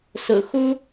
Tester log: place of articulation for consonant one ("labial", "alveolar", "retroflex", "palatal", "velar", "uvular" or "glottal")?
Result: alveolar